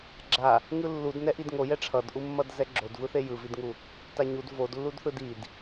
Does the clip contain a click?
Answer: yes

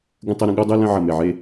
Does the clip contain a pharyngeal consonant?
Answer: yes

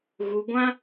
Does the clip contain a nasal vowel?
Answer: yes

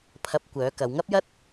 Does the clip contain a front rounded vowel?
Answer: yes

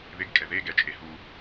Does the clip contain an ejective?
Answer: yes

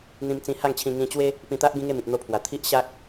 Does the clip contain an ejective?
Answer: no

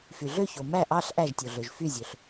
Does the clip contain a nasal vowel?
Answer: no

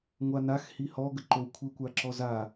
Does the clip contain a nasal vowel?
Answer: no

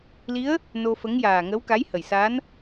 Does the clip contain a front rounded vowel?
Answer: no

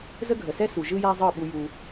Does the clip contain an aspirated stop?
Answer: no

